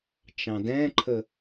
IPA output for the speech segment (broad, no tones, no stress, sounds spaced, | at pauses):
t͡ʃ ɑ̃ d ɛ̃ ǃʰ ə